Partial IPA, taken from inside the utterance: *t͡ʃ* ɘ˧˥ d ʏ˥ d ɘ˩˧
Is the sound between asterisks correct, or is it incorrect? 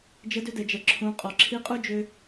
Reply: incorrect